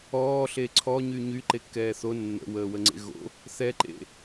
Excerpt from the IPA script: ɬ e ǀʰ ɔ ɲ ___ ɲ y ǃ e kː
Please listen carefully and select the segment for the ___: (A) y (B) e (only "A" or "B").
A